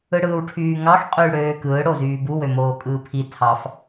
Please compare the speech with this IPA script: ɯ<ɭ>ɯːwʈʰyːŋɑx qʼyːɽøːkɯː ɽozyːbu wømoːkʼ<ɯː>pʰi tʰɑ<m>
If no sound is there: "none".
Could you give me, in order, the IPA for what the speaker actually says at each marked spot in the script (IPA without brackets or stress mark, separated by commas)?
ɽ, ɯː, f